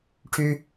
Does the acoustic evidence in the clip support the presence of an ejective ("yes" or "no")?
no